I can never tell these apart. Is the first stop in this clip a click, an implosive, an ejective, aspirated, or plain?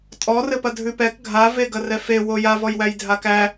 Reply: ejective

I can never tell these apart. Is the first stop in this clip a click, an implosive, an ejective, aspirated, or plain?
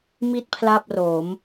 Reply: plain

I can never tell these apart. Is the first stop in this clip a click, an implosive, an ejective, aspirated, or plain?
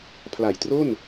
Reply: aspirated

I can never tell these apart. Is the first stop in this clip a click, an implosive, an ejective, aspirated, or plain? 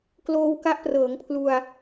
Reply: plain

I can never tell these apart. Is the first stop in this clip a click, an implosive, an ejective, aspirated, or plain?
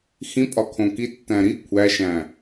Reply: ejective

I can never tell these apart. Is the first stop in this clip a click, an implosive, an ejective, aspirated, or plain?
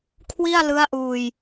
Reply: aspirated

